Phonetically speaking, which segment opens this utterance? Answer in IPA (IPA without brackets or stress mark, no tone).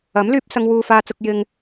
ɐ